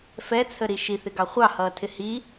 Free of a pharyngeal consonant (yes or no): yes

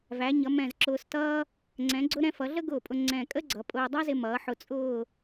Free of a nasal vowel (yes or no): no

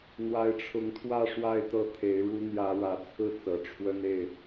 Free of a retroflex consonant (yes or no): no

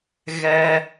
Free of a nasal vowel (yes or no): yes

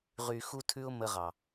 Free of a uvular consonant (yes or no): no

